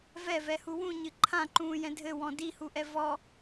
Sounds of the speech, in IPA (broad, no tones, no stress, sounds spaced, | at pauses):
v ɛ v ɛ h u w ũ ɲ ɨ ǃʰ ã ǃ ũː j ɛ̃ dʱ ɘ w ɔ̃ d i h u ʔ ɛ v ɔ